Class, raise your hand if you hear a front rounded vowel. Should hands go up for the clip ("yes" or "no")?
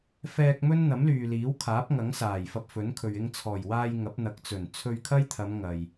yes